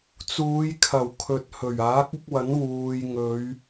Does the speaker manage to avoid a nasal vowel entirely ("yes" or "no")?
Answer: yes